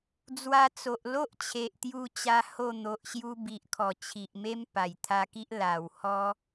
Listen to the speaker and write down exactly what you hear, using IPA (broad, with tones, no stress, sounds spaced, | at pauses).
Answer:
d͡z w a˧ t͡s o˨ ʔ l o˦ ʔ t͡ɕʰ e˨ ʔ t̪ j u˧ t͡ɕ a˧ h o˥˧ n̪ o˨ ʔ ɕ j u˧ b i˨ ʔ kʰ ɔ˨˩ t͡ɕʰ i˨ ʔ m e˦ m p a˨˩ j t̪ʰ a˧ k i˦ ʔ l a˨˩ w h ɔ˧